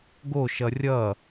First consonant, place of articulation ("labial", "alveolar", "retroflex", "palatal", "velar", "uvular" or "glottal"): velar